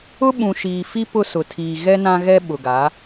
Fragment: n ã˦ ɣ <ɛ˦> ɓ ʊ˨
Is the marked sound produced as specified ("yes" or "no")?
yes